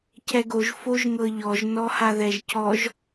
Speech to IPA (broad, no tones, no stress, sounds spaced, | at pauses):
cʰ ɛ ɡ o ʒ f o ʒ ŋ ɤ ʎ ɔ ʒ n ɔ h a ð ɛ ʒ cʰ ɔ ʒ